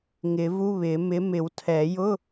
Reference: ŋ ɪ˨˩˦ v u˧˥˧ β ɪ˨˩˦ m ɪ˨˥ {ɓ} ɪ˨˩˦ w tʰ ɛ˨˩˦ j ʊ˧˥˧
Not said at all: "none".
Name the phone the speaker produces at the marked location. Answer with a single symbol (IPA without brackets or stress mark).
m